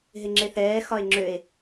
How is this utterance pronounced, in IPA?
ɦ e ŋ͡ǁ e θ ɛː x ɒ e̯ ŋ͡ǁ ø e̯

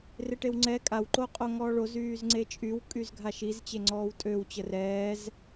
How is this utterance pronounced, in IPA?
r e ʈ e w ŋ͡ǀ ɛ kʼ a w ǃ o qʼ o ŋ ɔː ɭ o z yː z ŋ͡ǀ e t͡ʃʼ y w kʼ y z ɡʱ a ʃ i z t͡ɕ e ŋ͡ǀ ɔː w tʼ ø w t͡ɕ ə r ɛː z

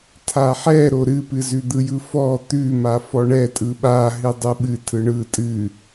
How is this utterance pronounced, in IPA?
tʰ a ħ ɛ ɾ o ɾ ɨ p ɨ z ʉ d̪ ɯ j ɯ f ɔ t̪ ʉ m a f ɔ ɳ ɛ tʼ ɯ ɓ a ɦ ɨ dˤ ɯ ɓ ɨ tʰ ɯ ɳ ɯ tʼ ɨ

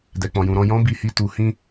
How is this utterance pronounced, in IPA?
d ɛ˨ k͡p ɔ̃˨ j ũ˨ ɾ ɔ̃˧ j ɔ̃˦ b i˧ h i˧ t u˨ h ĩ˧

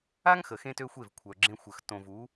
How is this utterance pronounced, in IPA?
a˦ ŋ x ə˨ x ẽ˦ t ø˦ xʷ e˦˨ v kʷʰ œ˨ ɡ͡ǁ ẽ˦ xʷ ə˨ x t õ˨ v u˨˦

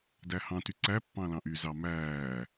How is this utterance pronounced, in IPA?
d æ h ɑ̃ t y ǀ æ pː ɑ̃ l ɑ̃ ʔ y z ɑ m æː

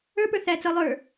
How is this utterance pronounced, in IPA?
ə˞ p ə˞ θ æ t͡s ʌ lˠ ə˞

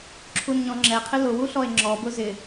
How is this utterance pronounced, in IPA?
ǁʰ u n ɲ ɔ̃ ŋ͡ǁ ɛ qʰ ɪ l ʊ w u ɬ ɔ e̯ ŋ͡ǁ ɔ b ʊ z ɪ

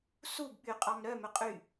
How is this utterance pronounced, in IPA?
s u b ɓ y qʼ ɑ m ɾ œ m ɵ qʼ y

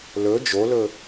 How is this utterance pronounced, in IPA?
l ɵ d͡ʒ o l ɵ

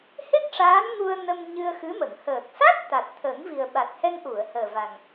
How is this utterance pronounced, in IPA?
h e˦˥ k̚ ʂ aː˧˥ n ŋ u˧ ə̯ n ə˧ m ɲ ɨ˧ ə̯ x ɨ˧˥ m ə˨˩˨ ŋ h əː˨˩ k̚ s a˦˥ t̚ t̪ a˨˩ t̚ t̪ʰ ə˨˩˦ ŋ v i˨˩ ə̯ ɓ a˨˩ t̚ h ɛ˧ ŋ ʔ u˨˩˨ ə̯ h əː˨˩ v a˨˩ ŋ

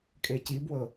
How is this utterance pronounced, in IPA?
kʼ e c i b w ɤ

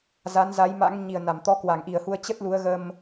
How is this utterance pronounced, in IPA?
z a˨˦ n z a˨˦ j m a̰˧˥ ŋ ɲ i˨˩ ə̯ n a˧˩ m t̪ ɔ˨˦ k w a˨˩ ŋ ʔ i˨˩ ə̯ h u˧ ə̯ t͡ɕ ə˦˥ t̚ l u˨˦ ə̯ ɣ ə˧ m

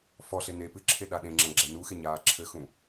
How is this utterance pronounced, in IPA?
f ɔ ɬ e n e p ɨ ǁʰ e ɗ a ɗ ẽ ŋ͡ǁ ɐ̃ ɡ͡ǁ ɛ n u x e ɲ aː ǁʰ ɘ x ũ

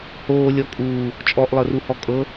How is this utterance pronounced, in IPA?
h oː lʲ ɔ kʼ uː | t͡ʃʼ ɔ ʔ lˠ ɤ r u h ɔ kʼ ɤ

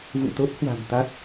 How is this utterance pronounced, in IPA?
v ṵ˧˨ t̪ o˦˥ t̚ h w a̤˨˩ m t̪ a˦˥ t̚

